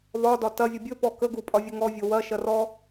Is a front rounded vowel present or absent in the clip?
absent